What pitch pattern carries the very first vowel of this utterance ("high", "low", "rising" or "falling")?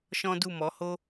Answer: high